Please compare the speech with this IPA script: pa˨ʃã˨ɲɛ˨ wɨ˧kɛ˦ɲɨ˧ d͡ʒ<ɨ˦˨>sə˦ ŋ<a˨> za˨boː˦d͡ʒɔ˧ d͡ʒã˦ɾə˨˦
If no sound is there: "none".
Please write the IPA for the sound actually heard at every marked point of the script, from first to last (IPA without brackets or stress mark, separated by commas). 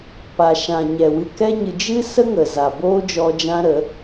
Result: ɨ˦, ə˨